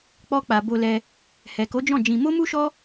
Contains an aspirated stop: no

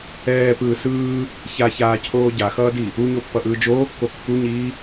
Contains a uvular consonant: no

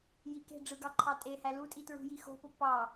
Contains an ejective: yes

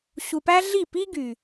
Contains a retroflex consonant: no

